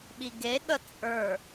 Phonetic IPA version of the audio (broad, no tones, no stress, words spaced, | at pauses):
ɓiɡeɠə t͡sʼə˞